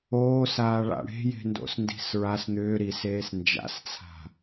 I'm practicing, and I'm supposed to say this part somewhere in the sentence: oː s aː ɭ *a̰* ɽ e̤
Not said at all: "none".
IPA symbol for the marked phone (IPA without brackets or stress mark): a̰